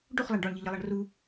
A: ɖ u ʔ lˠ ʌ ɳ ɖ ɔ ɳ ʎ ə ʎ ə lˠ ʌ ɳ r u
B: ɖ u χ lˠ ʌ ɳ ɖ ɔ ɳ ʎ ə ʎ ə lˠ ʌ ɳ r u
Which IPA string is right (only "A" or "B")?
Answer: B